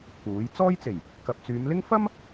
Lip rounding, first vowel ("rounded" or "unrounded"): rounded